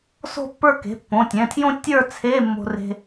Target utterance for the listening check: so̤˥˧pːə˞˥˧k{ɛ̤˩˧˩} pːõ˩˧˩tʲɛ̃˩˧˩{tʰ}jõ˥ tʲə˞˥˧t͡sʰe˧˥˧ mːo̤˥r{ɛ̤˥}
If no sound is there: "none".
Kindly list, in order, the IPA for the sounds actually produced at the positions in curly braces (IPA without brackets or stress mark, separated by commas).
e̤˩˧˩, tʰ, e̤˥